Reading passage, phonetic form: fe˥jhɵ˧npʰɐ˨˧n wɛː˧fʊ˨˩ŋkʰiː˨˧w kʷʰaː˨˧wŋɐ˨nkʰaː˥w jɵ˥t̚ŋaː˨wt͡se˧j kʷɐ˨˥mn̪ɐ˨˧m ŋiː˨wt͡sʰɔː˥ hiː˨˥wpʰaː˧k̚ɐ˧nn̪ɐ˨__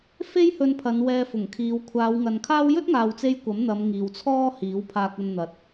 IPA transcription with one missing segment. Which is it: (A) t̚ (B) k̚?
A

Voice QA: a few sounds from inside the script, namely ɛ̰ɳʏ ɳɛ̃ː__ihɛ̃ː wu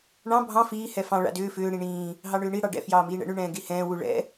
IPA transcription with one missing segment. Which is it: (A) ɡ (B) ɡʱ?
A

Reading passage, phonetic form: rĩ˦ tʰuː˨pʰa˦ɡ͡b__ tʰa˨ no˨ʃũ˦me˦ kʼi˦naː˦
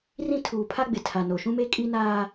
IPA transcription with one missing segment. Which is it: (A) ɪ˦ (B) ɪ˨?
B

